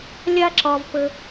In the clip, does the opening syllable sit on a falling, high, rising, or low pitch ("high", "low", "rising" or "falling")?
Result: high